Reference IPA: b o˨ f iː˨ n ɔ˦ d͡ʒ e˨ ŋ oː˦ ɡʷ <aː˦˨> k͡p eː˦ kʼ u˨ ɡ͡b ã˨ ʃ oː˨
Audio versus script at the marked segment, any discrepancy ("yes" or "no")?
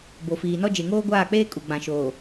no